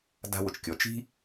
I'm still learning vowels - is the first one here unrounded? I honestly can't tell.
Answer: yes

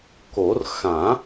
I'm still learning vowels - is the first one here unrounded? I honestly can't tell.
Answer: no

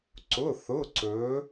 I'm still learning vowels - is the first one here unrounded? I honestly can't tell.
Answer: no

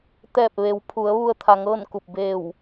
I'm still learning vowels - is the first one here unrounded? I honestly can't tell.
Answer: yes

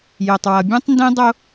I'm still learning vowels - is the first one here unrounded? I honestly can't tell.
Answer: no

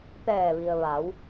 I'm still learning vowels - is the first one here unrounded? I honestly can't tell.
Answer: yes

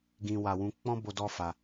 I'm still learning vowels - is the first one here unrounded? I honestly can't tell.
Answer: yes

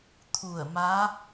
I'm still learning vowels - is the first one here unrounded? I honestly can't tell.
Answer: no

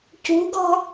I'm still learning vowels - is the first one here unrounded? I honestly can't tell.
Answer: no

